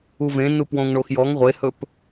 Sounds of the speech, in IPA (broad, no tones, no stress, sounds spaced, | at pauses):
u v ẽ n u p w õ ŋ ɳ o x j ɔ ŋ ʁʷ e h ɵ p